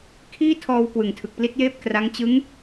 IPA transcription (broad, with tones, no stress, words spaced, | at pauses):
kʰiː˥˩tʰɔː˧w kwɯ˨˩ŋtʰɯ˨˩k̚pli˥˩t̚jeː˥˩p̚ kra˦˥ŋ t͡ɕɯ˦˥ŋ